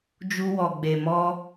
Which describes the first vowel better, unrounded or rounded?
rounded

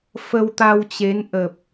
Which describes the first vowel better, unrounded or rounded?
unrounded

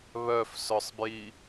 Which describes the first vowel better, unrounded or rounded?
rounded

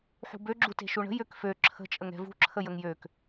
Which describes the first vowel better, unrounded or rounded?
rounded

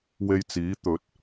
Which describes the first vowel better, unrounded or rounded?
unrounded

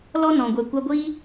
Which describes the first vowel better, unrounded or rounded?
rounded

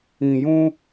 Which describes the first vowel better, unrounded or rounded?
unrounded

